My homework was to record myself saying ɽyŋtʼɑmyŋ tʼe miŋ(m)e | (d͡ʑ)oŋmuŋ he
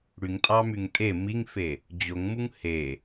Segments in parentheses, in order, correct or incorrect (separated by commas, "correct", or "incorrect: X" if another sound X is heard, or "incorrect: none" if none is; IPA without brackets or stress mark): incorrect: f, correct